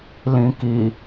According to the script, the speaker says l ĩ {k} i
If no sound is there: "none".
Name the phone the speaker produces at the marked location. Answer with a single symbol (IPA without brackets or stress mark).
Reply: k